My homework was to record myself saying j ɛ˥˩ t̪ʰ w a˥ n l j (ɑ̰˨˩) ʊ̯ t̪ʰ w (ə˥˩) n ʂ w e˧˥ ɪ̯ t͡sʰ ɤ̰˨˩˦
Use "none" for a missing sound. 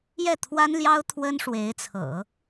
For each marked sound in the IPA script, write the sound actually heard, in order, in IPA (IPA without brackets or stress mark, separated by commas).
ɑ˥, ə˥